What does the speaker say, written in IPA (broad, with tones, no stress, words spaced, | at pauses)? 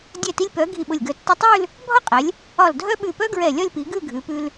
dʲɛ˧˩ti˧lʲ pœ˩˧ ɡʱi˧˩ɓʊ˧˩lʲɡœ˧˩ tːʊ˧tˤʉ˥˧l | bʱɒ˥qʼɛ˩˧lʲ | ɒ˧˩ldʱœ˥ɓʉ˧˩ pœ˥ɡɹɛ˧˩ lʲɒ˥˧lʲpi˩˧ ɡʉ˥˧ɡʱʉ˩˧pʉ˧l